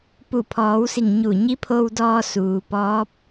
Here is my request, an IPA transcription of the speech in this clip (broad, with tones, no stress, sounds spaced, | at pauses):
p u˧˩ pʰ ɔː˩˧ w s i˧˩ ŋ ɲ u˧˩ ɲ i˧˥ pʰ o˧ w d ɔː˧ s uː˩ p ɔː˧˥ p̚